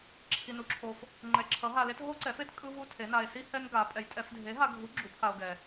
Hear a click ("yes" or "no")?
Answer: yes